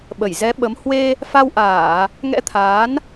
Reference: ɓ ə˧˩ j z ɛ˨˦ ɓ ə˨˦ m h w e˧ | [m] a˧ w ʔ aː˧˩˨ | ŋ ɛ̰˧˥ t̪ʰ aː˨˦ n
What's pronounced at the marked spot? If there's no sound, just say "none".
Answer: f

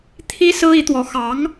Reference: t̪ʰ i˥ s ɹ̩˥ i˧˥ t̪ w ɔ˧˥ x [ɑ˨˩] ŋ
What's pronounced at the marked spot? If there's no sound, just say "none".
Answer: ɑ˧˥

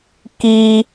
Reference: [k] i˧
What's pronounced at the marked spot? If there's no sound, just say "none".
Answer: k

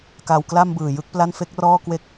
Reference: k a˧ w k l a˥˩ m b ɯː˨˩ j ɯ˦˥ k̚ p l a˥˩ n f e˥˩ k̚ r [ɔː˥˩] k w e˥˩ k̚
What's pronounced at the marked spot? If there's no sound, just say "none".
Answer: ɔː˥˩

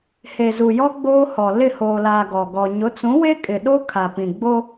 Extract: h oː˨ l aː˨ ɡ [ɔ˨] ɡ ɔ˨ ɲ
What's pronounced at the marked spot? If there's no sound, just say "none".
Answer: ɔ˨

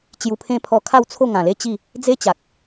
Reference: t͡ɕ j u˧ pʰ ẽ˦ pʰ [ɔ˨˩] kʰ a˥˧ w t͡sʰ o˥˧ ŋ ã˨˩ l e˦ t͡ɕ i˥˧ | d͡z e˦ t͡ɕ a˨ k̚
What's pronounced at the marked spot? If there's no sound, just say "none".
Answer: ɔ˧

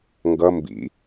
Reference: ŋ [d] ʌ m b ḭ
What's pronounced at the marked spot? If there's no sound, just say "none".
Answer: ɡ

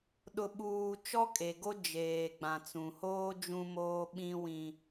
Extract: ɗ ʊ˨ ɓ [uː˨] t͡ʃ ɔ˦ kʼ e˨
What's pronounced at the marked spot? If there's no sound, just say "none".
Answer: uː˨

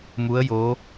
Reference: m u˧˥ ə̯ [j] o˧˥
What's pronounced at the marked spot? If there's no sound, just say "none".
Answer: j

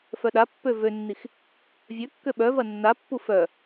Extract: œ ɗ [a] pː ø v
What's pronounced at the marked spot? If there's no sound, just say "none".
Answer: a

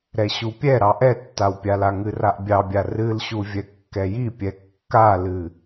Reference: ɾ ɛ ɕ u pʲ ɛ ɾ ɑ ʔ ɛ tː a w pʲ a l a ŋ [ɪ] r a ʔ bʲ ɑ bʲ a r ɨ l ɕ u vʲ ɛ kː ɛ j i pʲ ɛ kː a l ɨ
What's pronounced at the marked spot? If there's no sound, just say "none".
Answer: ɨ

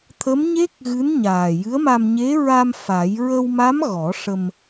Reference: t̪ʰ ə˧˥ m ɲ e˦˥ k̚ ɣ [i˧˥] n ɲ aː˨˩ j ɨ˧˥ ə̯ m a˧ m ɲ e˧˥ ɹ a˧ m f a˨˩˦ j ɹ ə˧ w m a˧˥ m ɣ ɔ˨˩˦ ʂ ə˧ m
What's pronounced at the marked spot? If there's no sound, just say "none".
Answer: ɨ˧˥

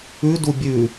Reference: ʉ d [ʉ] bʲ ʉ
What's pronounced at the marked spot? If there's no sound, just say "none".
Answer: u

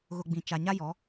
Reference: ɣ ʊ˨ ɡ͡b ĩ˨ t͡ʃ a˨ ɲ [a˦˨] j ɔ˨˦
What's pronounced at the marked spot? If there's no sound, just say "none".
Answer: a˦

